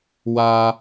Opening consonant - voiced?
yes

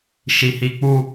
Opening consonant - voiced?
no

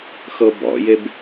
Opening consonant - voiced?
no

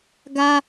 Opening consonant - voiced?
yes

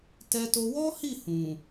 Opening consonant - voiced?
no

